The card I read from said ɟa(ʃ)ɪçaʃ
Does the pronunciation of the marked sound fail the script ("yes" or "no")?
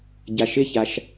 no